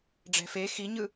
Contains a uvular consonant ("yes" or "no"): no